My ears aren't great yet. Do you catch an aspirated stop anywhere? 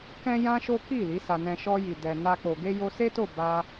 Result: no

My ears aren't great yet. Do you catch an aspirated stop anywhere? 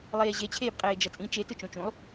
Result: yes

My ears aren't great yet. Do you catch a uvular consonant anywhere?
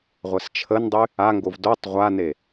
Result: yes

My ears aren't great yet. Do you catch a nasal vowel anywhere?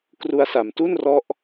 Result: no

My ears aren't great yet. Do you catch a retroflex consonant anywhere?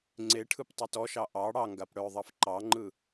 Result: yes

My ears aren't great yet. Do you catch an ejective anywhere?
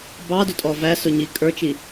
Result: yes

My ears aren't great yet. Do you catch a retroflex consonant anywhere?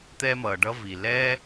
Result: yes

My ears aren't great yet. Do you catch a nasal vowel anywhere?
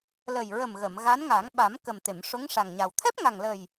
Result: no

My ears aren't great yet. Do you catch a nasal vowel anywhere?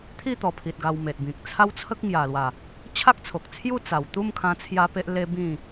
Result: yes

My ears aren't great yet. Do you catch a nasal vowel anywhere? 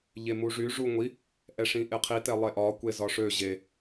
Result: yes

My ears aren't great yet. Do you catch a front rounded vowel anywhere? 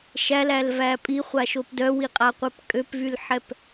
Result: yes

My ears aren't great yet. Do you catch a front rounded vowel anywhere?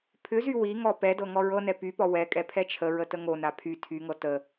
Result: yes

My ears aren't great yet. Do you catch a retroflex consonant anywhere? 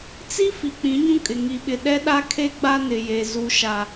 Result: no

